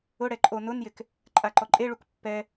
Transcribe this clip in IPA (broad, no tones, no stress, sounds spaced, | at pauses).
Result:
ʊ ɽ ɛ ǃʼ o n ʊ n j ɪ k | ǃʼ a ǃ ɔ ǃʼ e ɭ u k pː ɛ